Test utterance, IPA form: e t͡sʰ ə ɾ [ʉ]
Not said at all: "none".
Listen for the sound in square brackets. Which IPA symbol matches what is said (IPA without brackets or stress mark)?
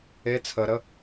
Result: ə